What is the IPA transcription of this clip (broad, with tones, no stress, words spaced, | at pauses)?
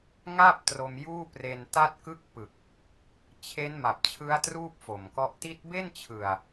ŋa˥˩p̚ tro˧mjuː˥˩pre˧n ta˥˩t̚kɯ˥˩k̚pɯ˨˩k̚ | t͡ɕʰe˦˥nma˨˩p̚t͡ɕʰɯ˦˥a̯ truː˥˩p̚fo˨˩mkɔ˦˥ʔ ti˦˥t̚be˥˩nt͡ɕʰɯ˨˩a̯